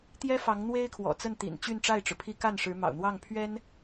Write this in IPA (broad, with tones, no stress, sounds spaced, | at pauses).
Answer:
t̪ j ɛ˥ f ɑ˧˥ ŋ n̪ w e˥ ɪ̯ kʰ w ɔ̰˨˩ t͡s ə˥˩ n t̪ ḭ˨˩ n t͡ɕ y˥˧ n ʈ͡ʂ a˥˩ ɪ̯ ʈ͡ʂ ɻ̩˩ pʰ i˥ k a˥˩ n ʂ ɻ̩˧˥ m ɑ̰˨˩ ʊ̯ n̪ w ɑ˥˩ ŋ pʰ ɥ ɛ˥ n